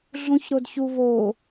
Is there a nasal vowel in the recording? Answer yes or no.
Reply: yes